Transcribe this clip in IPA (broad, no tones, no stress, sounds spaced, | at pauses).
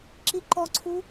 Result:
ǁ i ǃ ɔ ǀʰ u